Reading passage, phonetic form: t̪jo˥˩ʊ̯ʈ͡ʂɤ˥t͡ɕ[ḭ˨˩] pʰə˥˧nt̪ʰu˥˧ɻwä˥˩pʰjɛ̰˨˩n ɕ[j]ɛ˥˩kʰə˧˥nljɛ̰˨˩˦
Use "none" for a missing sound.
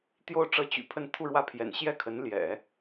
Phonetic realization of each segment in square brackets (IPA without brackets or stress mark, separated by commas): y̰˨˩, j